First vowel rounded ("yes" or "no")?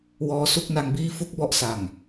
yes